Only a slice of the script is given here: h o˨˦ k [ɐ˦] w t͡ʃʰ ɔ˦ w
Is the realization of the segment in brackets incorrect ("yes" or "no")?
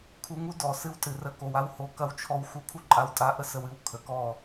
no